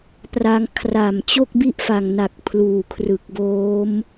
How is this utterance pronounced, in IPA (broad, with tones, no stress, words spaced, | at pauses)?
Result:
pra˧ŋkʰra˨˩m t͡ɕo˥˩k̚bi˥˩ʔfa˨˩ŋna˨˩k̚ pʰluː˨˩kʰrɯ˨˩k̚boː˦˥m